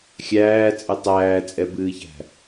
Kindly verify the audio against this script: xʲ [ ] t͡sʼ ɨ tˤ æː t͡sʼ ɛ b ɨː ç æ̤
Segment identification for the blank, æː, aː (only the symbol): æː